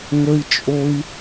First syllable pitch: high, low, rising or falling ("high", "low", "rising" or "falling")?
high